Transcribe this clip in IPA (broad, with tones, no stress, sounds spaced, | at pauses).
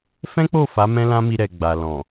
f ɛ̃˦ k͡p o˦˨ f a˨˦ m ɛ̃˦ l ã˦ m i˧ ɾ ɛ˨ ɡ͡b a˨ l ɔ̃˨